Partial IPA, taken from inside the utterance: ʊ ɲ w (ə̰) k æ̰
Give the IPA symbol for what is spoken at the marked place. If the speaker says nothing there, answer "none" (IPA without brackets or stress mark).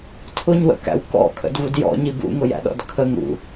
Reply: ə̰